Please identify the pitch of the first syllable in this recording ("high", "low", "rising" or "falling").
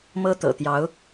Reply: high